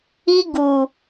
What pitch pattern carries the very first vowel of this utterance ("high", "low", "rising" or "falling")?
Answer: high